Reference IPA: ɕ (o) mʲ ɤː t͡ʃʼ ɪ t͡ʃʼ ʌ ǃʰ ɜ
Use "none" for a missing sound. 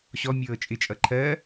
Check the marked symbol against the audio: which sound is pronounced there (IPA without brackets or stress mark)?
ɔ